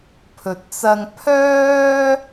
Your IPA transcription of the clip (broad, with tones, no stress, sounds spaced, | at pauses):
pʰ ɵ˨ t̚ t͡s ɐ˧ ŋ pʰ œː˥